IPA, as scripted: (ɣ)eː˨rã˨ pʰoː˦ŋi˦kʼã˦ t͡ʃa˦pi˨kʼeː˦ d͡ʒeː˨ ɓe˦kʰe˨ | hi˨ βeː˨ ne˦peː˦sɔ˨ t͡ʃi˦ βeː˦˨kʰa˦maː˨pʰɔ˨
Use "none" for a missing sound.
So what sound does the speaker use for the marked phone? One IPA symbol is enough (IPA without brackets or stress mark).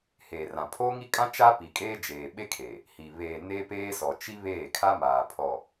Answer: h